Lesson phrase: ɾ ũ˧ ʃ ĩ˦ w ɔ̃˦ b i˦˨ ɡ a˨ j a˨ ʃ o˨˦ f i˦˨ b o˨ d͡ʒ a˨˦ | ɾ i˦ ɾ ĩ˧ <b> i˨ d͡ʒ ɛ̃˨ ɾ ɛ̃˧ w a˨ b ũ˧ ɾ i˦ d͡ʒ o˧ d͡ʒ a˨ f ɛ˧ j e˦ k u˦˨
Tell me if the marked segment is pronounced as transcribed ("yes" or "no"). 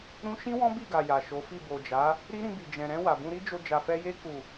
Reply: yes